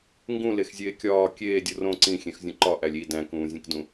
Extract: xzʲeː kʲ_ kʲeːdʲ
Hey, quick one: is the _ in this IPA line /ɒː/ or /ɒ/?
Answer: ɒː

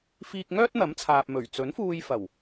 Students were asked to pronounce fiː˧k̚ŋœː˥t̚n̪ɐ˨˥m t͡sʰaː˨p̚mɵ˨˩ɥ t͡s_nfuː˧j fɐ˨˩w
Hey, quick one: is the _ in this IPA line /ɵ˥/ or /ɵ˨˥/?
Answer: ɵ˨˥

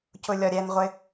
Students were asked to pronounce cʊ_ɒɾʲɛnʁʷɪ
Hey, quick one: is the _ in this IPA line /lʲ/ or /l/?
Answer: lʲ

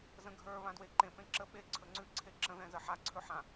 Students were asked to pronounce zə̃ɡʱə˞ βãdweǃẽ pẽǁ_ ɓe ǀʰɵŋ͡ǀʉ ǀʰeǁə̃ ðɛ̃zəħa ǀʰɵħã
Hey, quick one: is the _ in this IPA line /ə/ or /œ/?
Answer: ə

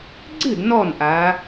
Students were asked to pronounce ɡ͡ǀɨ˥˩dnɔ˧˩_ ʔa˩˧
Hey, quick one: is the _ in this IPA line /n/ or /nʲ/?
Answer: n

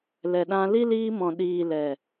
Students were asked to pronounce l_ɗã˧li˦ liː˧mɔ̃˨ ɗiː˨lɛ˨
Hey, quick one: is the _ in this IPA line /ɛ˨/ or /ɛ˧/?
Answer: ɛ˨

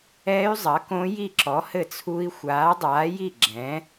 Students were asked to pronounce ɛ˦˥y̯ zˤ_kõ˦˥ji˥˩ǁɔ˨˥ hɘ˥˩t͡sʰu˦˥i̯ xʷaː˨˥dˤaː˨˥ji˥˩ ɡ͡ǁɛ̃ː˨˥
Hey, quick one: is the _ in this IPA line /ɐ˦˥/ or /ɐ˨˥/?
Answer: ɐ˨˥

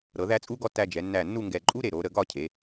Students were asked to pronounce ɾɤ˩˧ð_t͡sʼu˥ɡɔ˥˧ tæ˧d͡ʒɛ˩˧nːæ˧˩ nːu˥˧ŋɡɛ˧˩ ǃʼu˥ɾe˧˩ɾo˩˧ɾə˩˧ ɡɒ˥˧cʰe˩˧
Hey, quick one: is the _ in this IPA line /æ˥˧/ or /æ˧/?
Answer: æ˥˧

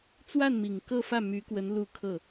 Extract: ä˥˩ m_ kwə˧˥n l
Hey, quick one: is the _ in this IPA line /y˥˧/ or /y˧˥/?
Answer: y˧˥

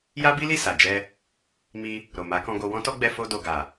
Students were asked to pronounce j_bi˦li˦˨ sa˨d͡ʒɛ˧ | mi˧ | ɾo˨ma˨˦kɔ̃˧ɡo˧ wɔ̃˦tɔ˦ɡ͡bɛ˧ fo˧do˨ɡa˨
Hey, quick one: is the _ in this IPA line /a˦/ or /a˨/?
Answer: a˦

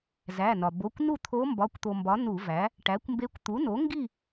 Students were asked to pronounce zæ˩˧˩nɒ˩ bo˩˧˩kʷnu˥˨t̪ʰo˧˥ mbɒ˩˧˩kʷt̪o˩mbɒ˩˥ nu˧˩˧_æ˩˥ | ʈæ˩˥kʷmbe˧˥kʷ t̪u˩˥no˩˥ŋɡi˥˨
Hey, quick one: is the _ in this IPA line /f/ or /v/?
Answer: v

